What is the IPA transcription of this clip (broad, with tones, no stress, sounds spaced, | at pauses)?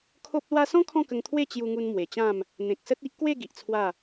kʰ o˦ p̚ l w a˦ s ɔ̃˦ kʰ ɔ̃˥˧ k ə˧ ŋ t̪ʰ w e˥˧ t͡ɕ j u˧ ŋ u˧ n m w e˨˩ t͡ɕ ã˥˧ m | n̪ ẽ˨ k̚ s ə˦ t̚ i˦ ʔ k w e˥˧ ɡ i˨ ʔ t͡sʰ w a˥˧